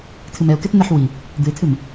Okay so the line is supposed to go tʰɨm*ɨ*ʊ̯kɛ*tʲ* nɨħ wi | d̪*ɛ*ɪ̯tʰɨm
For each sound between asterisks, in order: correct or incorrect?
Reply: incorrect, incorrect, incorrect

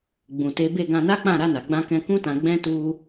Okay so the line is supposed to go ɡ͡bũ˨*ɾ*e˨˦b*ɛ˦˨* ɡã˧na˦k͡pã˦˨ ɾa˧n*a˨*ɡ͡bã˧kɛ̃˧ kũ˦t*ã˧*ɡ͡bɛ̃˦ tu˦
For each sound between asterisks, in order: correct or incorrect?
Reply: incorrect, incorrect, correct, correct

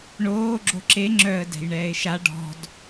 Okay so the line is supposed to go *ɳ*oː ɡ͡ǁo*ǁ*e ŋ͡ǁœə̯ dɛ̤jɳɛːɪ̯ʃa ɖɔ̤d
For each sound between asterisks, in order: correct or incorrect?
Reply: correct, correct

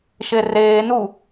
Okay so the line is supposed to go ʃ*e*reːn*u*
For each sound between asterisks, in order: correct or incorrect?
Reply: correct, correct

